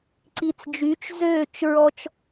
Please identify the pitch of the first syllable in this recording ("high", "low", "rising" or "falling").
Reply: low